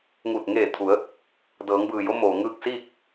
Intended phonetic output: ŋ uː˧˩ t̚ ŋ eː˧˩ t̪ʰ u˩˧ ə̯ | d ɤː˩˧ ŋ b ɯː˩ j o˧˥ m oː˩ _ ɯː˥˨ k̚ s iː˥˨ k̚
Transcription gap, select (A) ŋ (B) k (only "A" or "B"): A